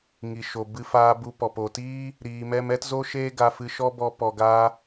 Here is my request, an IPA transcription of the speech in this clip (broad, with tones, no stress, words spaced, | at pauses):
ŋi˨ʃo˨ bɨ˧faː˧bu˧ pɔ˨po˨ tiː˦ | ɾiː˧mɛ˦m ɛ˦tzo˦ʃeː˦ ɡa˧fɨ˧ʃɔ˦ bɔ˧pɔ˨ɡaː˧